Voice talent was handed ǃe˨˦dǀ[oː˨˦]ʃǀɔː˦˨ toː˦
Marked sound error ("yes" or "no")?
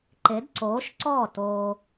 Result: no